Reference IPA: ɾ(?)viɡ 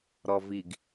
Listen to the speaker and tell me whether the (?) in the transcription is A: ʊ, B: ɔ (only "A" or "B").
B